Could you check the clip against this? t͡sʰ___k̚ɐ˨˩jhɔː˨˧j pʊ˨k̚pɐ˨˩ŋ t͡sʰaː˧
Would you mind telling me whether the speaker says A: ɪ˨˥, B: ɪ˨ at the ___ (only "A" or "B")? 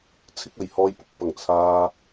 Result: A